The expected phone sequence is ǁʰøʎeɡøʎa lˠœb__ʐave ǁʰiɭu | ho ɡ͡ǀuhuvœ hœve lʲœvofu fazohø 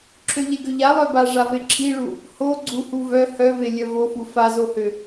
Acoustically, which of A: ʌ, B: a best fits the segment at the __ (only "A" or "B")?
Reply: B